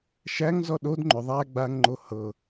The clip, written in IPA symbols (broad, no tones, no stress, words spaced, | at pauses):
ʃæŋzɔ ɗod ŋ͡ǃʏ ðˤæ ɡ͡baŋŋ͡ǃo hɤ